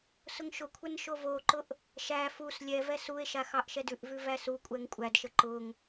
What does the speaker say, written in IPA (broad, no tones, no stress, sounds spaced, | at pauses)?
s ʊ ŋ ʃ ʊ kʷʰ ɛ n ʃ o v o ǃ ʊ ʔ | ʃ æ f u s lʲ ɛ v ɛ s u e̯ ʃ a x ɑ ʔ ʃ ɛ d ʉ ʔ v ʉ v æ s u kʷʼ ɛ ŋ kʷʼ æ d ʃ ə ǃ ʊ ŋ